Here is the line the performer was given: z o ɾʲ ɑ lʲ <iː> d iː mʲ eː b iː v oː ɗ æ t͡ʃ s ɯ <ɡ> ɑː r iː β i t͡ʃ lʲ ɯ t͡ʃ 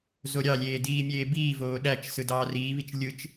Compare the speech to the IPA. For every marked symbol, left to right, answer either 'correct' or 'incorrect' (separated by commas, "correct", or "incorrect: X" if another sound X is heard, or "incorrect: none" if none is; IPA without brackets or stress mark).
incorrect: eː, incorrect: d